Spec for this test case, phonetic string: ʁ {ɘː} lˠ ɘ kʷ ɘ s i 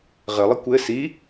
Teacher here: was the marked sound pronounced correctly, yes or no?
no